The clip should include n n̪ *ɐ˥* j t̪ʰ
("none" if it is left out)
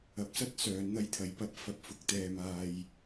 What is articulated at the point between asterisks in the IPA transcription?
ɐ˥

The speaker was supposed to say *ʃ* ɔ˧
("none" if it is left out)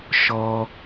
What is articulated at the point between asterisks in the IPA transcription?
ʃ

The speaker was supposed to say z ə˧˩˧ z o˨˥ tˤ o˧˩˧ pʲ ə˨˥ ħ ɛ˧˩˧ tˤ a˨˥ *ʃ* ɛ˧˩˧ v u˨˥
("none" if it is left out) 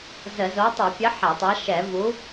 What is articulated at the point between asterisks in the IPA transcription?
ʃ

